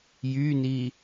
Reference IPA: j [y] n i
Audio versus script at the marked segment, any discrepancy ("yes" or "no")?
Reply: no